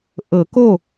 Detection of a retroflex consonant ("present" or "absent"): absent